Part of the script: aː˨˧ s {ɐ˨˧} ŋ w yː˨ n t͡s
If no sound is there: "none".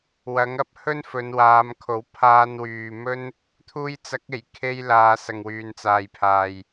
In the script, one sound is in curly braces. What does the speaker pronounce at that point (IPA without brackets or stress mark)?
ɐ˨